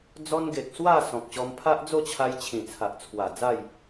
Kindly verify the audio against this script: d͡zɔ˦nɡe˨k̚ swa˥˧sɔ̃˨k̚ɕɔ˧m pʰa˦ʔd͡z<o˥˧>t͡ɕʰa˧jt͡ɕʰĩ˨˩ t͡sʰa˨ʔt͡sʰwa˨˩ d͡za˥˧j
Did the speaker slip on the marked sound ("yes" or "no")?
no